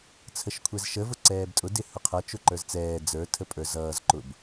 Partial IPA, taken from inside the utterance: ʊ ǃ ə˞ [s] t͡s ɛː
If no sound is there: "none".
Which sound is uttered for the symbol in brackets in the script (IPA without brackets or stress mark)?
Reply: z